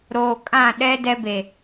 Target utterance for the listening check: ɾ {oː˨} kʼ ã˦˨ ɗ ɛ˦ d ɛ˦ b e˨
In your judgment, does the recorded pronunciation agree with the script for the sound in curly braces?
yes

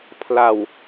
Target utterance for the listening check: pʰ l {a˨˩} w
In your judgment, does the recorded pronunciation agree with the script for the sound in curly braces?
yes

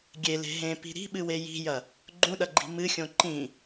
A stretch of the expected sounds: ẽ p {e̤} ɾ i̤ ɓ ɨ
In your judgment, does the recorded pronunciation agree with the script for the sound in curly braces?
no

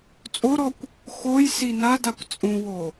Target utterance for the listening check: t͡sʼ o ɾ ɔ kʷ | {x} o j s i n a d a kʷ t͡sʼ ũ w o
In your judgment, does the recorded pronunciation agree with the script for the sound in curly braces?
yes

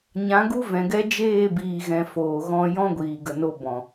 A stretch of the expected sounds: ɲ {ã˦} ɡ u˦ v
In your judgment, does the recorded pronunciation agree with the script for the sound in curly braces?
no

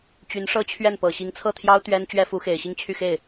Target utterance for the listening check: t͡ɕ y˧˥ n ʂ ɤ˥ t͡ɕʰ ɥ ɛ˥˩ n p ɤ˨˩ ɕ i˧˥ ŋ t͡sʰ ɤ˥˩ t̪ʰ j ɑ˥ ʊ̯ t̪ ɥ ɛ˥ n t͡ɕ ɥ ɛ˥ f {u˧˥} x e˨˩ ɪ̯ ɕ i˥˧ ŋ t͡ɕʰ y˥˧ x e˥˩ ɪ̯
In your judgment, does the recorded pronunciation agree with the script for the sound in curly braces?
yes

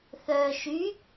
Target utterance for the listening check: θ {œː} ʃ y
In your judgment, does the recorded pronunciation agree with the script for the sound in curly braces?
yes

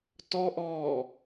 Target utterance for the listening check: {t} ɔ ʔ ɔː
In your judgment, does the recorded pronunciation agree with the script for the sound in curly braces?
yes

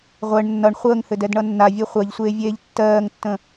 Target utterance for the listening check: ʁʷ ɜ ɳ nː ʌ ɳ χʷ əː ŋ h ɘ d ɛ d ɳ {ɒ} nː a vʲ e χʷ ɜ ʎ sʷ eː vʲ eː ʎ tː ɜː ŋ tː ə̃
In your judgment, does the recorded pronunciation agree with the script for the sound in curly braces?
no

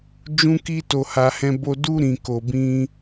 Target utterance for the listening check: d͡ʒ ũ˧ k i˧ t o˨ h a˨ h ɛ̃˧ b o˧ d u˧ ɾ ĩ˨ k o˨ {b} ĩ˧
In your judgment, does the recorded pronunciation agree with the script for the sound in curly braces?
yes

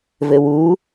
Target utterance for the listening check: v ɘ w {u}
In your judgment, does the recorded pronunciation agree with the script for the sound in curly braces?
yes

